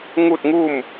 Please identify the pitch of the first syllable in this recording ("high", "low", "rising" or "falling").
falling